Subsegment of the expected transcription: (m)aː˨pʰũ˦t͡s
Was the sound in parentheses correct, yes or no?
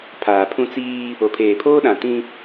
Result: no